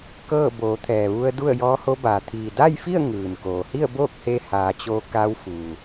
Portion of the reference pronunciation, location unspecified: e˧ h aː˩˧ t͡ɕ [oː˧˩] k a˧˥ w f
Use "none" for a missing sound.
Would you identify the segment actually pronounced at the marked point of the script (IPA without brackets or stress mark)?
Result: oː˧